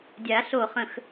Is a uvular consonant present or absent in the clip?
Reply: present